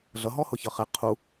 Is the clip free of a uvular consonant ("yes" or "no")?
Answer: no